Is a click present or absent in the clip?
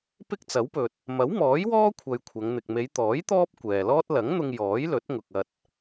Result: absent